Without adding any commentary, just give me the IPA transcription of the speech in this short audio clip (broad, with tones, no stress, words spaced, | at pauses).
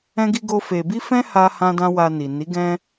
ɛ̃˦ɡi˦ɡo˦fe˧ bi˦fɛ̃˦ ha˦ hã˦dã˦wa˧ ni˨ ni˨˦ɡɛ̃˦